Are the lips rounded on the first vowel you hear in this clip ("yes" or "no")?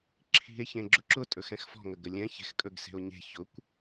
no